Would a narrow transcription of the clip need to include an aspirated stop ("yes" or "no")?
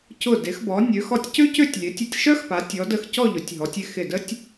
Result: no